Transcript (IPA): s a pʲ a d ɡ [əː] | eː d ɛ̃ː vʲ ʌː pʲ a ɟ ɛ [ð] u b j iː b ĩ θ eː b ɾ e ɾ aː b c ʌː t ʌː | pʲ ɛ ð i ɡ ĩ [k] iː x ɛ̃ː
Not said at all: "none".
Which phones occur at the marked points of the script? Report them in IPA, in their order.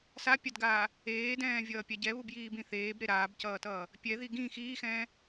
aː, β, x

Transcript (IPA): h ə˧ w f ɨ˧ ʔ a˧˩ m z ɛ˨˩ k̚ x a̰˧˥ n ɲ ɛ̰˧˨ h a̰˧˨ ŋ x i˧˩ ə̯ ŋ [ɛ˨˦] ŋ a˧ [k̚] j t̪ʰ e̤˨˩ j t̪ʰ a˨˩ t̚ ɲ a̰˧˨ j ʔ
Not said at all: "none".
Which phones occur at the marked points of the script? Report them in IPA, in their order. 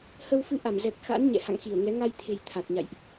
ɛ˨˦, none

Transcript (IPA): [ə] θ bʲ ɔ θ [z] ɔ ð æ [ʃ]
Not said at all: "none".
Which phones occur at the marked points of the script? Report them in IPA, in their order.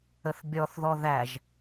ə, ð, ʒ

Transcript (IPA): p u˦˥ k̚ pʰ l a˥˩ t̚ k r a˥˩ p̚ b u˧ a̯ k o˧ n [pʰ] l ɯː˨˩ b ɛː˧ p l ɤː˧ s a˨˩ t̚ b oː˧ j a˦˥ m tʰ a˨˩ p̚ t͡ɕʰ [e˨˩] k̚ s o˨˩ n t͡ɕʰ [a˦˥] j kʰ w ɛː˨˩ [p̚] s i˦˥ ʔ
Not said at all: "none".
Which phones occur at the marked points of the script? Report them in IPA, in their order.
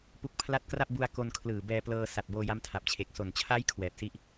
kʰ, e˨˩, a˦˥, p̚

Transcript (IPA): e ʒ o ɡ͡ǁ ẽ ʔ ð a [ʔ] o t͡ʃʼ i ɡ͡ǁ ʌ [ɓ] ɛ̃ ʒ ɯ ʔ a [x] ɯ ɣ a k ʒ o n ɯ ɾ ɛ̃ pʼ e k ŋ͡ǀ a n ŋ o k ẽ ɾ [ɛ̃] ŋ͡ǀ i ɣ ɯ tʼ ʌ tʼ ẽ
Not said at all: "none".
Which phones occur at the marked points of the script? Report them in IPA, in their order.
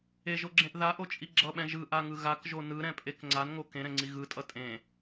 ʔ, ɓ, ŋ, ɛ̃

